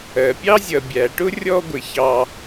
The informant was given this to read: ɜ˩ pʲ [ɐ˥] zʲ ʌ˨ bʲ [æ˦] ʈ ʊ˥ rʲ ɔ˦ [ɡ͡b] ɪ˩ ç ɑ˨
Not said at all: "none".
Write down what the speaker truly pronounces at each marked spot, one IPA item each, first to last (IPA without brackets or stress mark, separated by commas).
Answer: ɑ˥, æ˩, ɡʷ